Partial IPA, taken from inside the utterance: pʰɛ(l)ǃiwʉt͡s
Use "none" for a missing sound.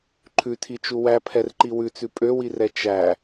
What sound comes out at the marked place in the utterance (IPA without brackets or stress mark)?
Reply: r